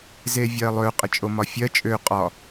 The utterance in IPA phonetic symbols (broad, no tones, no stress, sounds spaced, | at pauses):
z e vʲ ɜ lˠ ø qʼ ə t͡ʃʼ o m ɒ fʲ ɜ t͡ʃʼ ø qʼ ɒ